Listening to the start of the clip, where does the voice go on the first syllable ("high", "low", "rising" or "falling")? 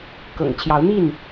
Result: low